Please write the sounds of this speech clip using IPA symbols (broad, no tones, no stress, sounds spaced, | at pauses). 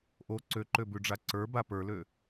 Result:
ʔ o ǀ ø ǃ ø b ʉ ɖ͡ʐ a ǀ ə˞ b a p ə˞ l ø